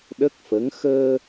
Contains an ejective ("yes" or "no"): no